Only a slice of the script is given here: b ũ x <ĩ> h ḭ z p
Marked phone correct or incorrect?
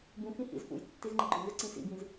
correct